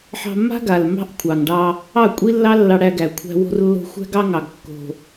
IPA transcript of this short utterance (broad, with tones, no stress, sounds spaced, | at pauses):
ħ ɑ̤˧ mː a̤˦ ɡ a˨ l m ɑ̤˦ ʔ kʷʰ ɑ˨ ŋ ɖ ɑ˧ | ɑ˦˨ kʷʼ i˦ lː ɑ˦ lː ɑ˧ ɽ æ˧ ɡ æ˨ kʷʰ æ̤˧ w o̤˧ r lː o̤˧ xʷ æ̤˦ ɡ ɑ˦ ŋ ɑ˨ ɡ kː o̤˨